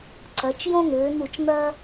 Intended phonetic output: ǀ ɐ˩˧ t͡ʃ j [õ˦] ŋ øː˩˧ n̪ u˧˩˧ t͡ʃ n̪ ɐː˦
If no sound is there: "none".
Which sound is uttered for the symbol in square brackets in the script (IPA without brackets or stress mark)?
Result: õ˦